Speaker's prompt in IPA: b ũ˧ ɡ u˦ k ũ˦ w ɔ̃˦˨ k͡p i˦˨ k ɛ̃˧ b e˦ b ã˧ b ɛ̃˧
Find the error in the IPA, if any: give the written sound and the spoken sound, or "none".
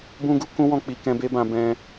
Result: i˦˨ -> i˨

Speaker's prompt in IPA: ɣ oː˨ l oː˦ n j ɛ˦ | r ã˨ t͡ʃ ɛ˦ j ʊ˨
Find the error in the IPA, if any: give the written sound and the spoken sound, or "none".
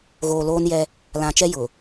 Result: r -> l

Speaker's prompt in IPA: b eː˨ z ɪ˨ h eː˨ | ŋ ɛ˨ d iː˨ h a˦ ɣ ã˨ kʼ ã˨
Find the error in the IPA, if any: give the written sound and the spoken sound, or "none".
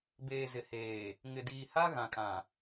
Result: ɛ˨ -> ɪ˨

